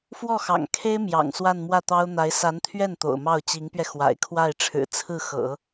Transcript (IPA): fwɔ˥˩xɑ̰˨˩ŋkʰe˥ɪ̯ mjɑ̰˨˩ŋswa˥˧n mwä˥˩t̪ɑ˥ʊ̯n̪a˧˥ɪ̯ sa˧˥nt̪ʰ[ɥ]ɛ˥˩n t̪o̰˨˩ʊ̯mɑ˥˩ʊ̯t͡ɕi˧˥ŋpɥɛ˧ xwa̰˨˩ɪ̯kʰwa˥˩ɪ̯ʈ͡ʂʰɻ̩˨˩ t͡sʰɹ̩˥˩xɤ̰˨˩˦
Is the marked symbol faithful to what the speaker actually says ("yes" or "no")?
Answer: yes